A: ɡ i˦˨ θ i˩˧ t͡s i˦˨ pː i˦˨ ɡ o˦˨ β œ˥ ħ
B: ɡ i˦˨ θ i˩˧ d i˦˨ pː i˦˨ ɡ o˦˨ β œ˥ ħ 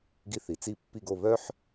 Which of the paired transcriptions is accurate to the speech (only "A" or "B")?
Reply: A